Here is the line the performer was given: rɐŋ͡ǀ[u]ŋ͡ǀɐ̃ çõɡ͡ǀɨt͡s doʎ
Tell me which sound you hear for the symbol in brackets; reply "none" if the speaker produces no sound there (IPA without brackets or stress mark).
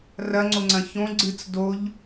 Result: o